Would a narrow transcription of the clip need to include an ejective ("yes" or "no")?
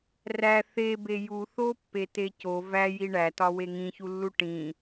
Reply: no